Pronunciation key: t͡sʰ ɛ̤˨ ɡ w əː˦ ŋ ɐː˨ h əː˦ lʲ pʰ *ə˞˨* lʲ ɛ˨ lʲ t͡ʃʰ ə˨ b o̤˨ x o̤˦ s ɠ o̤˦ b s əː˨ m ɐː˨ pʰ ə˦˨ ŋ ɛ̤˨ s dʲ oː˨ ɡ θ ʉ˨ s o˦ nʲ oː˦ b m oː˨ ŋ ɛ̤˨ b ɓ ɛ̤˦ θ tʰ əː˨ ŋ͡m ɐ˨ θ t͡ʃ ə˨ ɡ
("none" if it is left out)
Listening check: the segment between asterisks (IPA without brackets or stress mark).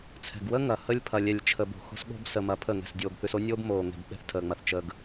ɐ˨